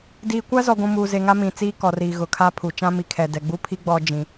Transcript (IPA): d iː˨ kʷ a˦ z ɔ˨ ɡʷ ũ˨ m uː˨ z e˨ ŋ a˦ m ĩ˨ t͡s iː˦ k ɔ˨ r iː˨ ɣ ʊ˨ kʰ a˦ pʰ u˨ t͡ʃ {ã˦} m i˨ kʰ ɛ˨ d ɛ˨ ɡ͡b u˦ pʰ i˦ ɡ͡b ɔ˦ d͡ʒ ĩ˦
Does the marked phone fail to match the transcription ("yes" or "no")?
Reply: no